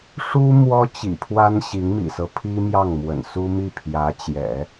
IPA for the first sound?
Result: ʂ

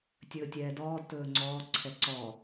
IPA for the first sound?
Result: tʲ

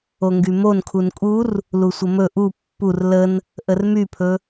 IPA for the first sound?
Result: o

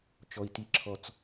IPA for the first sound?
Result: t͡ʃ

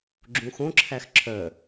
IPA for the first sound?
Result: ɡ͡ǁ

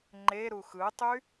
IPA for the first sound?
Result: ŋ͡ǃ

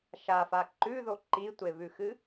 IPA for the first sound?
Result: ʃ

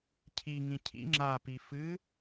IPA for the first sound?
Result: cʰ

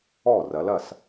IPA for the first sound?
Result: ɔ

